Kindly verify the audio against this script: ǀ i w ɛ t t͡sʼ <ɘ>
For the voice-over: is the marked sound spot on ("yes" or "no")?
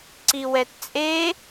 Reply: no